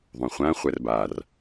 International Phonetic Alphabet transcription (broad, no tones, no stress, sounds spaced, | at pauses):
ðˤ ũ χʷ ã χʷ ɛ r b a r